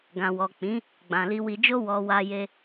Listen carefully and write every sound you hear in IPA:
ɡ ã˨ w ɔ˨ k͡p ĩ˨˦ | ɡ͡b ã˨ l i˧ w i˧ d͡ʒ o˦ w ɔ˧ w a˦ j e˦

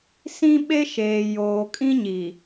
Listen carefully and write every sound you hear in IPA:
s ĩ˦ ɓ e˦ ʃ eː˨ j oː˨ kʼ ĩ˦ ɲ i˨

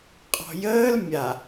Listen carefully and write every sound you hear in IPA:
qʼ ɔ̤ j əː l mʲ a

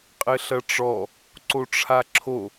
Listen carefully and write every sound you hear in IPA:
qʼ ɘ ɬ ɐ ʈ͡ʂ ɔ | ǀ o ʈ͡ʂʰ a ǁʰ o

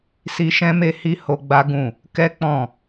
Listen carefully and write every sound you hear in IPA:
s i˦ ʃ ɛ̃˦ m e˦ h i˦ h o˦ ɡ͡b a˦ ɡ ũ˦˨ | k ɛ˦ k͡p ɔ̃˦˨

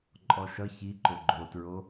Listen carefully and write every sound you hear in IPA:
ǃʼ ɔ ʃ ʌ ç i ǃ o ɡ͡ǃ o t ɹ o

